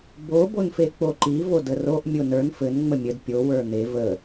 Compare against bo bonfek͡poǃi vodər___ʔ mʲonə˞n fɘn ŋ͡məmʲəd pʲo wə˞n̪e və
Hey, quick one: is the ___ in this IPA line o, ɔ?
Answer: o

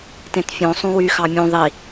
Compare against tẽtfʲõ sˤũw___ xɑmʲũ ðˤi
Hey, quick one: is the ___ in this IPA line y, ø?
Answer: y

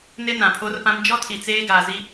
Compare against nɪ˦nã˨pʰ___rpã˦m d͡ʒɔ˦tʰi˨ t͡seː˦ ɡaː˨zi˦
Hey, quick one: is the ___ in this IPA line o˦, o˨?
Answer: o˦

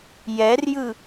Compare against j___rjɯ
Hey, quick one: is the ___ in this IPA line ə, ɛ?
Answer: ɛ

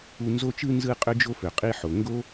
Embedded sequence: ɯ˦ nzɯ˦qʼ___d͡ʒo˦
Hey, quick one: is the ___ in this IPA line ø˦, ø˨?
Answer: ø˦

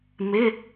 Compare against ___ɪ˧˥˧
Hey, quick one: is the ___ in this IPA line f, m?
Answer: m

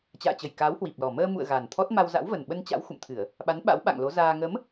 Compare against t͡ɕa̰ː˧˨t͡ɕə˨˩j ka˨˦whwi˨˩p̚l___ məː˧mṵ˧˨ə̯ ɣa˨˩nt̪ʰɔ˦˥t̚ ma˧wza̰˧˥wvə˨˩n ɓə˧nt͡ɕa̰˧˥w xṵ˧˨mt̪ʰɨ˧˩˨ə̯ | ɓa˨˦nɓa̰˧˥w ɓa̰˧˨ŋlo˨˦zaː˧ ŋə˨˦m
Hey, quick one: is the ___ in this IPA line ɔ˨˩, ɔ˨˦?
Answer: ɔ˨˩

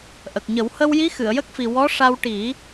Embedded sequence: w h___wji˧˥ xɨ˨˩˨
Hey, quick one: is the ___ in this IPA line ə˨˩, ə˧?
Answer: ə˧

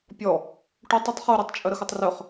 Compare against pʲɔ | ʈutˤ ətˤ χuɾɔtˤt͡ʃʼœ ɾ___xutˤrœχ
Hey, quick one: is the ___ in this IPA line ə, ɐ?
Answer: ə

